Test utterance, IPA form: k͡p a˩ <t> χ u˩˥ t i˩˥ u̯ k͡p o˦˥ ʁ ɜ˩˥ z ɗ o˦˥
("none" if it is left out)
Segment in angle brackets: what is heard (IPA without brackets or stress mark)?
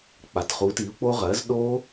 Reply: t